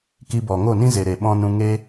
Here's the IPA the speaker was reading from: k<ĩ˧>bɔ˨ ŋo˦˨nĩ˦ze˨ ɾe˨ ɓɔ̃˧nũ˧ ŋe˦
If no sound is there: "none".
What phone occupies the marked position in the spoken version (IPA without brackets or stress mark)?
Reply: i˧